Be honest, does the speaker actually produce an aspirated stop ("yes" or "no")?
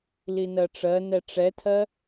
yes